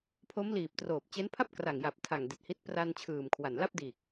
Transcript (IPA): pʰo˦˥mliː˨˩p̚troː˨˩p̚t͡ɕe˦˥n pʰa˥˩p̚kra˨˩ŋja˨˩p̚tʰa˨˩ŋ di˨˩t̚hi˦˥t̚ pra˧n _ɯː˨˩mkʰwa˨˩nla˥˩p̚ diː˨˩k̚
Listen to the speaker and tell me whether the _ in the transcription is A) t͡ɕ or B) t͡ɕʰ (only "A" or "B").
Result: B